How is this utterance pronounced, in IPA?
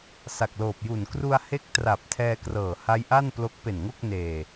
sa˨˩k̚loː˨˩p̚ju˨˩n kru˧a̯he˦˥k̚ tra˨˩p̚tʰɛː˧krɤː˨˩ ha˦˥jʔa˥˩n plo˦˥k̚pe˨˩nŋo˥˩k̚ neː˨˩

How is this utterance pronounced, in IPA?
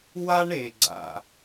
wa˥ɳe˩ ɡ͡ǀa̰˩

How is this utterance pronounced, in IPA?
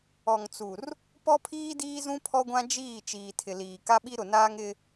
ɔ˨ŋt͡su˨r | pɔ˦pʰiː˦diː˦zũ˦ pʰɔ˦ɡʷã˦ d͡ʒiː˦˨ t͡ʃiː˨tʰɪ˨liː˨ ka˦ɓi˦ɾʊ˨naː˦ŋ ɪ˦

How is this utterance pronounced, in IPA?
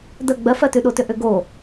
də ɡ͡bɜfɜtʉɗo tʏʔʏɡo

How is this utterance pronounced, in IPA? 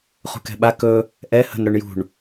χṳkɛ̤ɓa kɵ | ʔɛ hə̤n ɾɵɳjṳɳ

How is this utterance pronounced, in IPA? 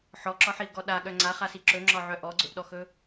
ħɔǁɒħiʊ̯ɡɔ ɗaɠœ ŋ͡ǀaχasi ǁɵŋ͡ǁɒʕœ ʔɔɡ͡ǀɵʔɗɔxɵ

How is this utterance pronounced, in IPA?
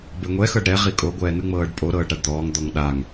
beŋʷɛ xɤɖɾɛ ʁikʼo ɡʷɛːnɯŋ͡mɤːɖpʼo ɾɤːɖɾaɖd̪ɔːŋ d̪ɔŋɗaŋ

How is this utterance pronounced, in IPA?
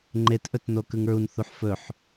ŋ͡ǃetʔɵtno kɯŋɹun θuħfɵħ

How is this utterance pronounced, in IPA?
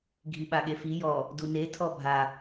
ɡʱiɓaɠefi jɔ | dune tʰɔbʱa

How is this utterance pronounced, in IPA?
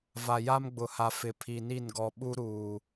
va˨ja˦mɡ͡bʊ˨ha˨ fɪ˨pʰi˨ ni˦˨nɡɔ˨ ɓu˦ɾuː˨

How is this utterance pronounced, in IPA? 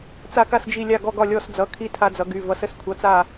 t͡sa˧ka˧sd͡ʒi˧˩ lʲa˧˩ɡɔ˧˩ɡɒ˧˩ lʲɔ˧˩sd͡zʌ˩˧˩kʰi˧˩ tʰa˧d͡zʌ˩˧ɡy˩˧˩ vʌ˩˧sə˧skʷʰʌ˩˧˩t͡sa˧˩

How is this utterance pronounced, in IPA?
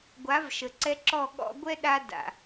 ɡʷa˨˦vʃə˨ǀɛ˧ ǁɔ˦˨ɠɔ̰˦ ɡʷɛ˦ɗa˧ da̰˨

